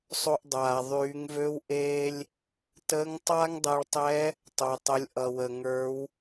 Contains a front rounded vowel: yes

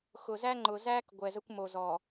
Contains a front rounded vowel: no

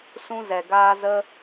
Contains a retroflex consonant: no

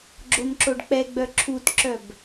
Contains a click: yes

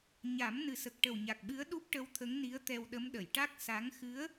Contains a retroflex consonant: yes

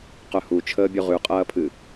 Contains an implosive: no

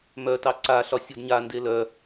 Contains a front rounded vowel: yes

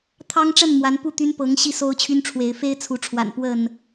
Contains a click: no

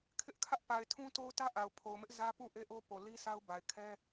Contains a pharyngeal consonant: no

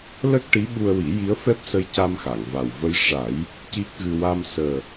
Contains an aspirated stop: no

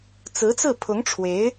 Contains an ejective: no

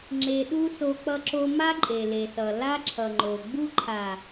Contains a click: yes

